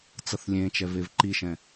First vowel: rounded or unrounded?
unrounded